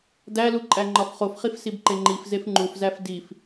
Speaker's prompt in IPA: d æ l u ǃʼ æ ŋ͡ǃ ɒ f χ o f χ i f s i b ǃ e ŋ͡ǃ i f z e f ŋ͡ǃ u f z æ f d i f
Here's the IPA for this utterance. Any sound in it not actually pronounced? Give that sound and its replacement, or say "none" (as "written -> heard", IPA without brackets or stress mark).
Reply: none